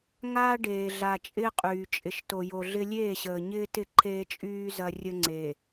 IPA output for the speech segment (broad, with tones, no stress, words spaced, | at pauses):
ŋaː˦ ɖeː˨ɮa˨ t͡ʃʼɪː˦qʼyː˨ t͡ʃʼɪ˨ʃto˨jo˨ɮɪ˦ lʲeː˦˨ɕəː˨ɲɪː˦tɪ˦˨ ǃʰeː˦t͡ʃʼyː˦ zɐ˦ rʲə˦ŋ͡ǀeː˨